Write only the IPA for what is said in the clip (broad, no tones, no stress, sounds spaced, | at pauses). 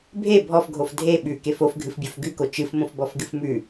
bʱ e bʱ ɔ f ɡʱ o f dʱ e ɓ ʉ k e f o f ɡʱ ɨ f bʲ o f ɡ ʉ k o t͡ʃ ɨ f m õ f b ɔ f ɡ ɨ f m ʉ